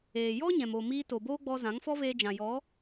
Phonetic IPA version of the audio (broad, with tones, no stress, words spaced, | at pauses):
eː˨jɔ˦ ɲɛ̃˨moː˨miː˧ to˨boː˦ɡ͡bɔ˧ zã˨˦ŋfɔ˦veː˧ d͡ʒã˨jɔ˨˦